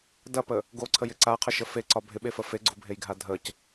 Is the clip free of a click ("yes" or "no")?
no